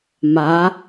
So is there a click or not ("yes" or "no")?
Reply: no